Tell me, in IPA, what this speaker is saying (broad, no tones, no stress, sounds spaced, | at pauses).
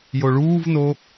j o ɭ uː v n o